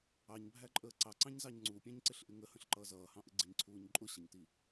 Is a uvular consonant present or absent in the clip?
absent